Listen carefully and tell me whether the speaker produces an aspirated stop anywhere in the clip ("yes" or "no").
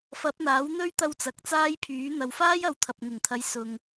yes